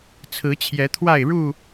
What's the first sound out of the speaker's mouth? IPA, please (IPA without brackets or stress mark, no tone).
t͡sʰ